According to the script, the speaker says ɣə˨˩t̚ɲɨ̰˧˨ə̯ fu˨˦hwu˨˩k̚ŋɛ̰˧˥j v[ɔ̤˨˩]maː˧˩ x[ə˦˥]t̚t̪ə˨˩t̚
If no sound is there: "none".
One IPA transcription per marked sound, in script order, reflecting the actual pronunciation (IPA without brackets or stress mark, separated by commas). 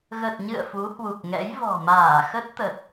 ɔ̤˨˩, ə˦˥